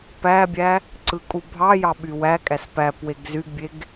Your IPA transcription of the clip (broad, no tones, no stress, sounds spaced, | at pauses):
p æ bʲ æ | ǀ ɯ kʼ u bʱ ɑ j ɑ ɓ y w æ kʼ æ s p æ p w e ɡ z y ɡ bʲ e ɡ